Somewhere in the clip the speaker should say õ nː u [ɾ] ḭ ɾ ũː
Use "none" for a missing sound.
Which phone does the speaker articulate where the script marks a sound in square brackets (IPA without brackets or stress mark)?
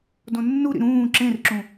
ɾ